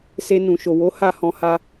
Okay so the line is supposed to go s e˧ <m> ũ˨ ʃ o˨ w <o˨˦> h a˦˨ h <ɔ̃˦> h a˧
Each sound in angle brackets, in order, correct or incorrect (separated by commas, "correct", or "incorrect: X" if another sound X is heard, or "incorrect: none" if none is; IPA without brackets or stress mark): incorrect: n, correct, incorrect: ɔ̃˧